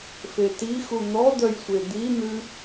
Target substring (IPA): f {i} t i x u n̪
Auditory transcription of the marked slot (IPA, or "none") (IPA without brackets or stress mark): e